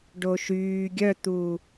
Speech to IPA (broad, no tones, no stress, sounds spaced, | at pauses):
ɖ o ʃ yː ɡʲ œ t̪ uː